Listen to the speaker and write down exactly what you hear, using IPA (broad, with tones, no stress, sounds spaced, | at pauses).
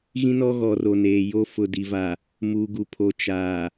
ɣ ĩ˦ n ɔ˦ ɣ ɔ˨ r o˨ n eː˨ j o˦ f ʊ˨ d i˨ v a˨ | m uː˨ ɡ u˨ pʰ o˨ t͡ʃ aː˨